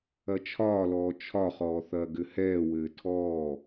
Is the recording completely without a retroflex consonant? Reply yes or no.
yes